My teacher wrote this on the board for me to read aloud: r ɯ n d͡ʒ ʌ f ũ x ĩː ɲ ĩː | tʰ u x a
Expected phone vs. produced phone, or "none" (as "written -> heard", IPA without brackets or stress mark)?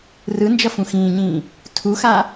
none